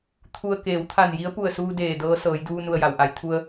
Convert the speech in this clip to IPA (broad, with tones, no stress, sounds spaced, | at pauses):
t̪ʰ u˧ ə̯ k eː˩˧ w t̪ʰ a˧˩ n j i˧˥ ə̯ p u˧˩ ə̯ s uː˧ d eː˧˩ d ɤː˧˥ s ɤː˩˧ j d uː˧ n u˧˩ ə̯ j a˩ w ʔ a˩˧ j t̪ʰ u˧ ə̯